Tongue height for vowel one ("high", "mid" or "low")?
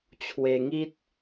mid